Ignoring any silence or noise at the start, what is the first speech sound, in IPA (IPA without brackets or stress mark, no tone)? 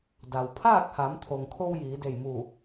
d